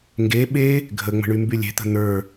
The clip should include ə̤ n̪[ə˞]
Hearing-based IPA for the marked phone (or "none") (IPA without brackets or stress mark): ə˞